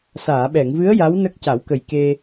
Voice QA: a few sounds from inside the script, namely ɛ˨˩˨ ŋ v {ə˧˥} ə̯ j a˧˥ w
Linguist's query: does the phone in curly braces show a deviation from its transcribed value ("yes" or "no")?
yes